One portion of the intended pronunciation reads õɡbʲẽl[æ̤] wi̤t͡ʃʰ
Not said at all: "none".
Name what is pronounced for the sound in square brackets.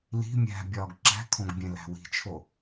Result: æ̤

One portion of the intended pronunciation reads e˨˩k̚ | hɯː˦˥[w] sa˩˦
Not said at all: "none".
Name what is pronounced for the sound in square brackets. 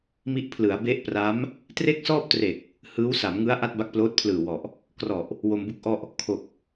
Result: w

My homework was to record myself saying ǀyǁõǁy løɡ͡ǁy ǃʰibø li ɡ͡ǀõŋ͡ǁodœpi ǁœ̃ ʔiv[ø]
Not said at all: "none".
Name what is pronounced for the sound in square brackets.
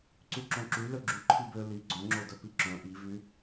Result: y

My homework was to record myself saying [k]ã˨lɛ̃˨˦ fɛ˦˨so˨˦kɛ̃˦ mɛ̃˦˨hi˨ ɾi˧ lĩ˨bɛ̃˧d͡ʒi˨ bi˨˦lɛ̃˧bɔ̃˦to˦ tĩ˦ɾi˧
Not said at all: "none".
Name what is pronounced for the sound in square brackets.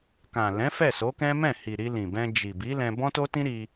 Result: k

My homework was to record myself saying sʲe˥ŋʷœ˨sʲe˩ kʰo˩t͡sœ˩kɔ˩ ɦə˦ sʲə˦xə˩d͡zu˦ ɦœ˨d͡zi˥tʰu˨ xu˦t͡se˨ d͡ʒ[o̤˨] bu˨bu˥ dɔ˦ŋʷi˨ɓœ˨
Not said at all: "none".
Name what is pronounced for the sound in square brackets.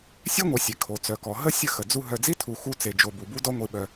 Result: o˨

